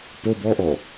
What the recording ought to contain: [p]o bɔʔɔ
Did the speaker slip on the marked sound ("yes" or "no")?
no